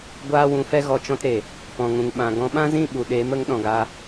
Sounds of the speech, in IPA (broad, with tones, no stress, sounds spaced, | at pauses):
ɡʷ aː˦ w ũ˧ f ɛ˦ ɣ ɔ˦˨ t͡ʃ ɔ̃˦ t ɾ e˨ | p ɔ̃˨ ŋ ũ˨ ŋ ɓ ã˨ ɡ ɔ̃˧ ɓ ã˦ z ĩ˦˨ ɓ u˨ ɗ eː˨˦ m ə˨˦ ŋ ɗ ɔ̃˨ ɡ a˧